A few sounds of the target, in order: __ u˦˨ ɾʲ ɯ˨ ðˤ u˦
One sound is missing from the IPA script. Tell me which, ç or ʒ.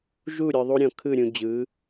ʒ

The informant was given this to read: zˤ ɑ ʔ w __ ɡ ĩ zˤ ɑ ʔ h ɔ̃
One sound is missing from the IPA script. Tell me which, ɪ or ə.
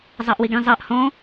ɪ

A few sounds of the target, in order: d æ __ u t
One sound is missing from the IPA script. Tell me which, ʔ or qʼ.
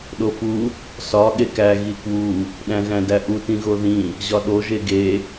ʔ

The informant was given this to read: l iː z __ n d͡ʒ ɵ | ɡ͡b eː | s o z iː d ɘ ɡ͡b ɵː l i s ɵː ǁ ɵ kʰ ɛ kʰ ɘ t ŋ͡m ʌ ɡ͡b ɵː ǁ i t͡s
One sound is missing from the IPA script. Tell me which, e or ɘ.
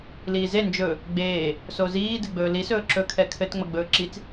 e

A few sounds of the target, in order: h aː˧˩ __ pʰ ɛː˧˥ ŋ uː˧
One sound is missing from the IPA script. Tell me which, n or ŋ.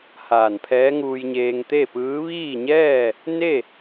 n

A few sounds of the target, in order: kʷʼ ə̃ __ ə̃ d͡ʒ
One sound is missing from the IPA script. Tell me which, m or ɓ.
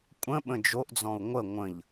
ɓ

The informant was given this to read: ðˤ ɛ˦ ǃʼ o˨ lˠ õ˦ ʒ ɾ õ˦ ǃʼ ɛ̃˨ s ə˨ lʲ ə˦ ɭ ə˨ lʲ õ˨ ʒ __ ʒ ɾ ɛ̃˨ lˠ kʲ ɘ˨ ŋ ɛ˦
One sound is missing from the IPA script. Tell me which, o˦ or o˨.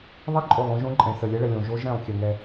o˦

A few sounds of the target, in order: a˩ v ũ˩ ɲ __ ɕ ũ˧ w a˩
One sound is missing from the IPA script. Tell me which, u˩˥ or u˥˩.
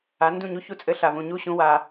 u˥˩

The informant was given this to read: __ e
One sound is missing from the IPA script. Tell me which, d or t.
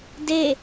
d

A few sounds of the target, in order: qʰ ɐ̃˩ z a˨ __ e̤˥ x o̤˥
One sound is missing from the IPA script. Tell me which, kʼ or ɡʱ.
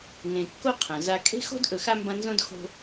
kʼ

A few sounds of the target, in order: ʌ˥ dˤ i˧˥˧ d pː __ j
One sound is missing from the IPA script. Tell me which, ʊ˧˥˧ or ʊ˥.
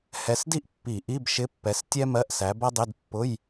ʊ˧˥˧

